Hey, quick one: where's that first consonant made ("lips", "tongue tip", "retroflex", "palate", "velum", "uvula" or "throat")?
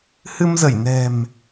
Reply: throat